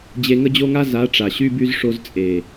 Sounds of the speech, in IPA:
d͡ʑ e˧ ŋ ə˦ d͡ʑ o˦ ŋ a˦ z a˨˦ ʈ͡ʂ a˨ ɕ y˧ b y˧ z ʂ o˧ z t͡sʼ e˨

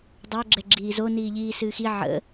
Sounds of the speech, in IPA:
dˤ o ɡ͡ǁ ɛ ɡ͡ǁ iː z o n iː ʎ iː s ɨː x i ʕ ə̰

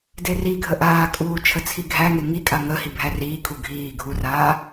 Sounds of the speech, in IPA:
d e r i ɡʱ ə ʔ aː kʼ uː t͡ʃʰ ə t͡sʰ i ɡʱ æ ŋ e ŋ i kʼ a ŋ ə h i bʱ æ r iː kʰ u ɡʱ iː ɡʱ u r aː

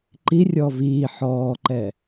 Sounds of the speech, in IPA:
ǃ i rʲ ɔ v iː ħ ɔː ǃ ɛ

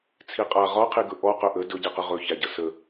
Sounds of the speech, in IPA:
t͡sʰ i qʼ a ʁ ɒ qʰ i ɡ ɵ ʔ ɔ q ɵ ʔ ə d ɵ ɟ i q ə ʁ ɵ ç æ ɟ ə s ə

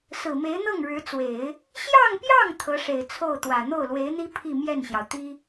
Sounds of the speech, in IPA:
s ɹ̩˨˩ m e˧˥ ɪ̯ n̪ ɤ˥˩ ŋ ɻ ɻ̩˧˥ t͡s w e˨˩˦ ɪ̯ | ɕ j ɑ˥˧ ŋ p j ɑ˥˩ ŋ t̪ʰ ɤ˧˥ ʂ e˨˩ ɪ̯ t͡sʰ o˥˩ ʊ̯ t̪ w ä˨˩ n̪ o˥˩ ʊ̯ l w e˧˥ ɪ̯ n̪ i˥ pʰ i˥˧ m j ɛ˥˩ n ɕ j ɑ˩ ʊ̯ t̪ i˥

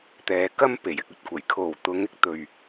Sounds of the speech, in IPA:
t̪ ɛː˨ k ɐ˥ m p e˨˩ j ɪ˨ k̚ ɵ˨ t̚ kʷ ɐ˨˩ j kʰ o˨˩ w t̪ ʊ˨˧ ŋ ɪ˨ k̚ t̪ ɵ˨˩ ɥ

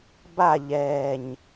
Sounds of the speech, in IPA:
b a ʎ ɛː ɲ

